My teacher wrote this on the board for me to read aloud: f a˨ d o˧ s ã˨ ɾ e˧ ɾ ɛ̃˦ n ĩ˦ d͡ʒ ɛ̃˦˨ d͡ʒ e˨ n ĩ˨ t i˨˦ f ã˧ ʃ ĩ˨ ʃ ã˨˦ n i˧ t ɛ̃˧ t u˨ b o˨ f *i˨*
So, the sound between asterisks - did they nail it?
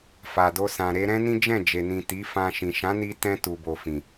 no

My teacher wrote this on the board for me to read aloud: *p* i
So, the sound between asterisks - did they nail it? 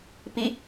yes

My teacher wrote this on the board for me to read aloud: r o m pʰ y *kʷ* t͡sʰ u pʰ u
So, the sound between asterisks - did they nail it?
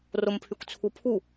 yes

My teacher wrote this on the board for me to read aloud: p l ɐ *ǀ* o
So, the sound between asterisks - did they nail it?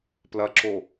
no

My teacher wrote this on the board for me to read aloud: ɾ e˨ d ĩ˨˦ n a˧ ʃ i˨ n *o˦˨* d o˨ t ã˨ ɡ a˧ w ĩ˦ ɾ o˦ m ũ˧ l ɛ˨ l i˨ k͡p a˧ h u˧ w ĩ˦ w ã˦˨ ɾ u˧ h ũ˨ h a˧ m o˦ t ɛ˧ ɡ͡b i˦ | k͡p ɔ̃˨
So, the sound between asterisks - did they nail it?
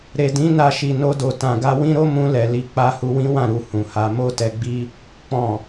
no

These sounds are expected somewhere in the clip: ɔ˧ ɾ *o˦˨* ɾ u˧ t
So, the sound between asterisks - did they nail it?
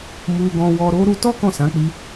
no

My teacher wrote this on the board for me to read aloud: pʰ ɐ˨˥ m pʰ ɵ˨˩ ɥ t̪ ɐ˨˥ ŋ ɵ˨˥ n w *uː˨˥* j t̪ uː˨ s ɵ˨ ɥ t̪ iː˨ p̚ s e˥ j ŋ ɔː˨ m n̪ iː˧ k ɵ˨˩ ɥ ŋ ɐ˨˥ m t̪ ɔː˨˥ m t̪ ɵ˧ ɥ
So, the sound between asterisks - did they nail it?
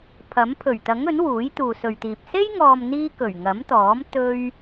yes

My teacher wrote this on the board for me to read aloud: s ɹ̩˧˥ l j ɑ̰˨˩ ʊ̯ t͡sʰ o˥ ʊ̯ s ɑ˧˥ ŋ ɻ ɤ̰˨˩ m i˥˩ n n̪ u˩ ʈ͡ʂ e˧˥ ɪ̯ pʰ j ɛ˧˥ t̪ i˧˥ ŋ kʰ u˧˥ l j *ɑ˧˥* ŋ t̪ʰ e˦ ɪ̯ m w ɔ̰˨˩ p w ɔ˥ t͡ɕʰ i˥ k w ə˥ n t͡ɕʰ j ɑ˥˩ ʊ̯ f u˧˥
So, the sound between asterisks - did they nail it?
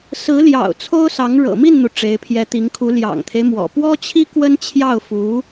no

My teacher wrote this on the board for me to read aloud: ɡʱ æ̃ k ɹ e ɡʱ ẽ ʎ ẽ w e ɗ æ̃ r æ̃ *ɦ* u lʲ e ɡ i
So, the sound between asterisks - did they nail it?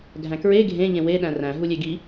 yes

